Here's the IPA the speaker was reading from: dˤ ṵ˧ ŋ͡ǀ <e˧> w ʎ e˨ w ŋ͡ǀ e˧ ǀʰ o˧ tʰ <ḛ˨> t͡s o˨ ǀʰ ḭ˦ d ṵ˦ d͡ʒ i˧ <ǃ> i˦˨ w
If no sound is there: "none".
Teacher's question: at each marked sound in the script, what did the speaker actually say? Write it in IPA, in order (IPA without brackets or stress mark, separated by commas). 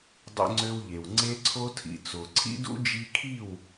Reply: ø˧, ḭ˨, kʰ